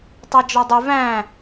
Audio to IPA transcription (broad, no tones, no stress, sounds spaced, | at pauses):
tˤ æ d͡ʒ ɔ dˤ u v æ̃